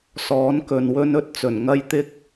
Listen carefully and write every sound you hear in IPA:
sɔː˨˥nkɵ˨n wɵ˧nɵ˨˥t̚t͡sɵ˨˩nŋɐ˧j t̪ɪ˥k̚

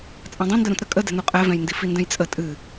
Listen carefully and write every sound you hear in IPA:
t͡sʼãdˤẽndə ɾũtɾə kʼədɛ̤nu qʼɛvɛ̃jndi findɛ̃jt͡sʼə tʼɨ

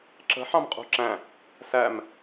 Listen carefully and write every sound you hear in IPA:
ǁə̤ ħɑ̃mqʼṳǁæ̃ | sæm

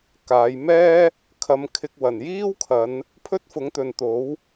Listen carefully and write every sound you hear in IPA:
kaː˨˧j mɛː˥ | kʰɐ˧mkʰɪ˧k̚ wɐ˨˩njiː˥wkʰɐ˨˧n | pʰɵ˥t̚fʊ˨˥ŋt̪ɵ˨nt̪o˨˥w

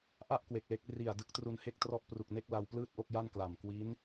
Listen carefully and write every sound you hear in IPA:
ʔa˥˩ʔ kwe˨˩k̚le˦˥k̚ ri˨˩a̯ dɯ˦˥k̚tru˧nhe˥˩k̚trɔ˥˩ʔ pru˨˩k̚ne˥˩k̚ la˧wplɯː˥˩t̚ʔo˥˩k̚ ja˥˩nkla˨˩m kwi˦˥n

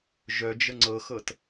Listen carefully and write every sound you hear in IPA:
ʒœd͡ʒə ŋ͡ǀɤxɤt

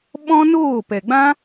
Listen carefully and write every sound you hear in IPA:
ɓɔ̃˦noː˦˨ pɛ˨ɡ͡bã˦

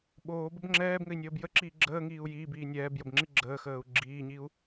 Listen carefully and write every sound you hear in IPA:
ɓoːbəb ŋ͡ǁɛːbŋɘi̯nʲəːb jəǁiː ɡ͡ǁəːŋiːu̯ jiːbiː nʲɛːbjəbŋ͡ǁi ɡ͡ǁəːxəːu̯ ɡ͡ǁiːɲiu̯

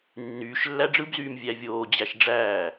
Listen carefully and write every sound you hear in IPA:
nːyːʃlːæ ɖ͡ʐɯbzyːm vʲævʲoː d͡ʑæʃɖ͡ʐæː

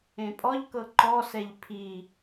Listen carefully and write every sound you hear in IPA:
ẽpʼɔʎkɤ ǃɔsɛʎ pʰi

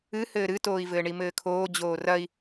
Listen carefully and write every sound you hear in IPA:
ɨ hɘːɾɨtoːi̯vɘː ɳimɘːkʰoː d͡ʑoːrɐi̯

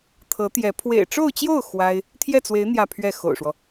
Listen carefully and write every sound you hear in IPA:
t̪ʰɤ˧˥t̪jɛ˧˥ pʰwḛ˨˩ɪ̯ʈ͡ʂo˥˧ʊ̯t͡ɕjo˥˩ʊ̯ xwa˥ɪ̯ | t̪ʰjɛ˥˩t͡swe˧˥ɪ̯ n̪jä˥˧pʰɥɛ˥˩xo̰˨˩ʊ̯ʂwɔ˦

